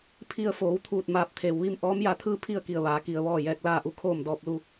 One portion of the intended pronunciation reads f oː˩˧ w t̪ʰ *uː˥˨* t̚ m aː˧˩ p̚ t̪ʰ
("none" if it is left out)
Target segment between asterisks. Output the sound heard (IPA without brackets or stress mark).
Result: uː˧˩